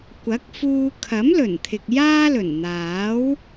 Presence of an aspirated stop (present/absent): present